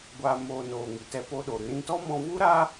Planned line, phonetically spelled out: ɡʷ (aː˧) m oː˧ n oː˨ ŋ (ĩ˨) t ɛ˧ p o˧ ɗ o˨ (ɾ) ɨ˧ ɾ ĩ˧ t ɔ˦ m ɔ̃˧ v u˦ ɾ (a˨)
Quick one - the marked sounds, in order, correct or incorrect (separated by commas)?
correct, incorrect, correct, incorrect